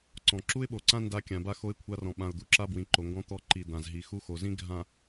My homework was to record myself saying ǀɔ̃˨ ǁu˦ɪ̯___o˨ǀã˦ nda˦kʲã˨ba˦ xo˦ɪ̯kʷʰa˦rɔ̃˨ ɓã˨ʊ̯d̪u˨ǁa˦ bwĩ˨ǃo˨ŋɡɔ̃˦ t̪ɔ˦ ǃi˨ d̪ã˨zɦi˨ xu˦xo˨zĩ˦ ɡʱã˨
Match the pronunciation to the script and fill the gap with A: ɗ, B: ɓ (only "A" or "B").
B